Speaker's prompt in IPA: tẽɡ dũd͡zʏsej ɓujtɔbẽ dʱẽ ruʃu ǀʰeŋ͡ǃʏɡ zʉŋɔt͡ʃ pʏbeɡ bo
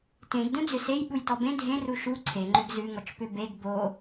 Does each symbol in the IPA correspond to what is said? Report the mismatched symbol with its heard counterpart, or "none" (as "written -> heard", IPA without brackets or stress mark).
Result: none